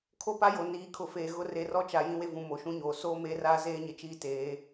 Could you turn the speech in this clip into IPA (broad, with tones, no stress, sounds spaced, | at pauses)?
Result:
kʰ o˦ p a˦ j o˨ n iː˨˦ kʰ ʊ˨ f eː˨ ɣ ʊ˦ r e˨˦ r ɔ˦ t͡ʃ a˨ j ĩ˦ w e˦ v ũ˨ m o˨˦ ʃ ũ˦ ɲ oː˨ s oː˦ m eː˦ r aː˦ z eː˦ ɲ ɪ˨ t͡ʃ iː˦ t eː˨˦